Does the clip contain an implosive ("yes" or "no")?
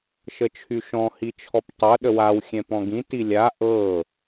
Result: yes